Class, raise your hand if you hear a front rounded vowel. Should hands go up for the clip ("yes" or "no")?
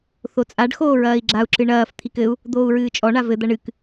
no